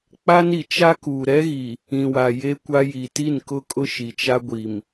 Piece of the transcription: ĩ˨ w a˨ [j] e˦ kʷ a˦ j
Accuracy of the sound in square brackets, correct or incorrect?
correct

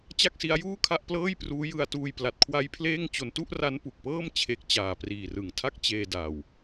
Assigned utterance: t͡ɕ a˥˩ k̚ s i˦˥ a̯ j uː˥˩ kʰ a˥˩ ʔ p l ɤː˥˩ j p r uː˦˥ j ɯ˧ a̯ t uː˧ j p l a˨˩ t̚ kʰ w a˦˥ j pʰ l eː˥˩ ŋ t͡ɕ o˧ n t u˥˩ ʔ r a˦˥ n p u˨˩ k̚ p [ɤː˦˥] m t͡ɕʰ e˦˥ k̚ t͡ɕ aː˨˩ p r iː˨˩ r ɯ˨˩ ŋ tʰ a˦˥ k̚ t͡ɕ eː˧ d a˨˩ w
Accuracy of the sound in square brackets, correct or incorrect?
incorrect: ɤː˥˩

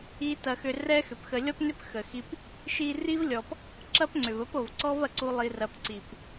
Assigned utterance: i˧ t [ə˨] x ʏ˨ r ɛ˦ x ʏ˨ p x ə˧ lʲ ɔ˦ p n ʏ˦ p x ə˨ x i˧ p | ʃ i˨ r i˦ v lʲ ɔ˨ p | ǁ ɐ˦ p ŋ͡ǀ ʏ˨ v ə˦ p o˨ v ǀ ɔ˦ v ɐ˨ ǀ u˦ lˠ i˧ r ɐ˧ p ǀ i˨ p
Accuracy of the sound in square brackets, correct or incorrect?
incorrect: ɐ˨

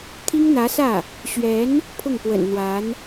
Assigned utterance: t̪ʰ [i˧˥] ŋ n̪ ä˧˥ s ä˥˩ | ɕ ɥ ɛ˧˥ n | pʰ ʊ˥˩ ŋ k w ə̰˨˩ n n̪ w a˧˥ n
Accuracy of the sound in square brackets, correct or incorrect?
incorrect: i˥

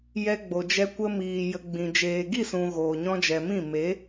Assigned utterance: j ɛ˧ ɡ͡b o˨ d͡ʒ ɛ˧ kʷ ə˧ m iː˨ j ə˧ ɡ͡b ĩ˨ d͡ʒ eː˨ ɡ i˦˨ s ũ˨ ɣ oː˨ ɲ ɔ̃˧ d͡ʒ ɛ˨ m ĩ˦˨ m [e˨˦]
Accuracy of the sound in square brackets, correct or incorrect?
correct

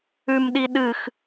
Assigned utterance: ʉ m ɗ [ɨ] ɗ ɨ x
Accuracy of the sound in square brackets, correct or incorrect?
incorrect: i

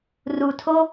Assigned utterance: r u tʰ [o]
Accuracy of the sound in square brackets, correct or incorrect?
correct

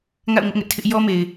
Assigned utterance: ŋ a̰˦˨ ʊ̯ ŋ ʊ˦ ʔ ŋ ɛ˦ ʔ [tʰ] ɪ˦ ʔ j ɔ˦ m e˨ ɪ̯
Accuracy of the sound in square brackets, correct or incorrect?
correct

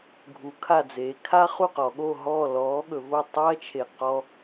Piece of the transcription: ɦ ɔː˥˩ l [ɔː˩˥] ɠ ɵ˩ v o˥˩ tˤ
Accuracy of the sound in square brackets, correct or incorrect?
correct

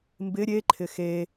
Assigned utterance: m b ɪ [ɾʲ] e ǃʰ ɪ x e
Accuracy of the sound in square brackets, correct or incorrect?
correct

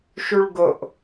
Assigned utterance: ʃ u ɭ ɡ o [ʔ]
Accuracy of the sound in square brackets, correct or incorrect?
correct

